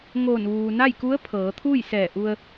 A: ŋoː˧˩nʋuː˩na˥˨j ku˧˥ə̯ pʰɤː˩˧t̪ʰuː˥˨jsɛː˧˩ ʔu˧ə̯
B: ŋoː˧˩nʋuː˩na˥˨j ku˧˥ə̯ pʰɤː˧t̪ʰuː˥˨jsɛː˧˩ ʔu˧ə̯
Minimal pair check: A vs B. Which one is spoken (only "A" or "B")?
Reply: A